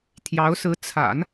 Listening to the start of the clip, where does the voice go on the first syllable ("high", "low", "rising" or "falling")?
rising